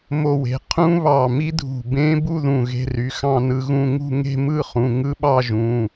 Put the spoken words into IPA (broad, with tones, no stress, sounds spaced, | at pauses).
m o˧ w e̤˩˧˩ qʰ ũ˦˥ β ɑ˧˩ m i˦˥ dʱ ṳ˧˩ b ẽ˦˥ b u˥˧ ð ũ˧˩ ɣ e̤˧ r y˩˧˩ x ɑ̃˥˧ n ɯ˧ ɣ ũ˥˧ ŋ ṳ˥˧ ŋ e̤˥˧ m ɯ˥˧ χ ũ˩˧˩ ŋ ɯ˦˥ ɓ ɑ˥˧ ʒ ũ˩˧˩